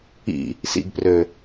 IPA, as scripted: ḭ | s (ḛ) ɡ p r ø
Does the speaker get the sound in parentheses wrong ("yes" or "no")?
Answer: yes